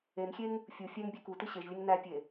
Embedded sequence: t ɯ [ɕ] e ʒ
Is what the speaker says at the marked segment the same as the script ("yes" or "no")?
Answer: yes